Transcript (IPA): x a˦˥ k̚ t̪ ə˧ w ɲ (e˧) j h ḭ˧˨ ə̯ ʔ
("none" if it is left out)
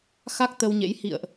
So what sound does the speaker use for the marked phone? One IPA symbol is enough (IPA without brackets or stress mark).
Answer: ḛ˧˥